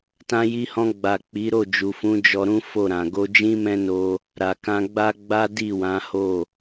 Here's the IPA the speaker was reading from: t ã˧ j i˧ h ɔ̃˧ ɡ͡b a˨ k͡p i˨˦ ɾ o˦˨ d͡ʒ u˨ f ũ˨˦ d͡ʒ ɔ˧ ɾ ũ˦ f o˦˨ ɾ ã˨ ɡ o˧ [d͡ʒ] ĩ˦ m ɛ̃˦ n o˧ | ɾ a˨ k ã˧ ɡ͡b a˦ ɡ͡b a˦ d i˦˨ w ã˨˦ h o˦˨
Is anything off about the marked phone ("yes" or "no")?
no